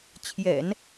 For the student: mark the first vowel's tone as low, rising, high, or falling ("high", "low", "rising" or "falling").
low